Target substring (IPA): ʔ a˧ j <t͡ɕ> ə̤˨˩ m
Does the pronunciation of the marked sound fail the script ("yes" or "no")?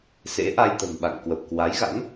yes